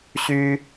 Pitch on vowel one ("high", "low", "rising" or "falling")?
high